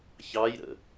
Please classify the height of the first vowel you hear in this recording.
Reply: low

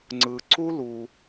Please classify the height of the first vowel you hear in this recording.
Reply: high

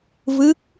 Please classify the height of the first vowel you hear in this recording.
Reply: high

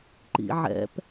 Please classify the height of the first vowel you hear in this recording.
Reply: high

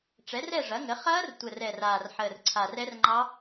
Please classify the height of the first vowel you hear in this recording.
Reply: mid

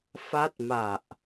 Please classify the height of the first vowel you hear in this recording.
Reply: low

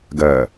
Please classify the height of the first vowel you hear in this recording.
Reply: mid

